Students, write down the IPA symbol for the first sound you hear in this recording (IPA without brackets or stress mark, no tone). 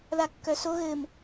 ð